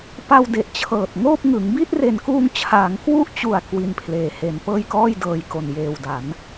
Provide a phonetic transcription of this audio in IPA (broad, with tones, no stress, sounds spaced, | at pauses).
p a˧ w d e˨˩ ʔ t͡ɕʰ ɤː˨˩ t̚ ŋ oː˥˩ p̚ ŋ ɯ˩˦ ŋ b i˥˩ t̚ r e˨˩ n k uː˧ ŋ t͡ɕʰ aː˩˦ ŋ k w u˥˩ ʔ t͡ɕ u˨˩ a̯ k w i˦˥ n pʰ l eː˧ h e˧ n p ɤː˥˩ j k ɔː˥˩ j d ɤː˧ j k o˨˩ n j eː˨˩ w d a˩˦ n